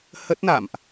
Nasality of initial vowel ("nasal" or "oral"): oral